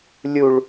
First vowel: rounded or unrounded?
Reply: rounded